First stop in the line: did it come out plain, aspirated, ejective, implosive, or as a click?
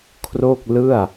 aspirated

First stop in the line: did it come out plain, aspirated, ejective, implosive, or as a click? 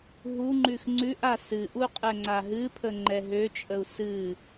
click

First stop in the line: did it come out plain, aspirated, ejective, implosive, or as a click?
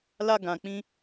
plain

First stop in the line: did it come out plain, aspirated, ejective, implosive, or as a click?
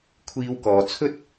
aspirated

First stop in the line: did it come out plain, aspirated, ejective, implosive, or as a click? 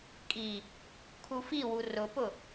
ejective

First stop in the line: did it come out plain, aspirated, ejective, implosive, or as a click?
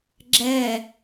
click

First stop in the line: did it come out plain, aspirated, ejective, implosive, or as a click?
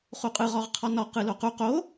ejective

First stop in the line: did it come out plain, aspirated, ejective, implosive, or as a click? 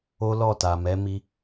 plain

